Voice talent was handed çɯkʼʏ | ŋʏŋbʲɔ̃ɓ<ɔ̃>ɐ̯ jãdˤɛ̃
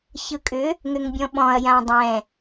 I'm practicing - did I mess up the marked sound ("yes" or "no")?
no